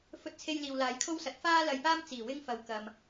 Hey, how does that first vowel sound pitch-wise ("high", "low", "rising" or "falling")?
high